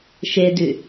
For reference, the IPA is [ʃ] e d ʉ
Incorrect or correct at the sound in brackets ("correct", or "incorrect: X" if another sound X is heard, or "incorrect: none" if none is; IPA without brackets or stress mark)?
correct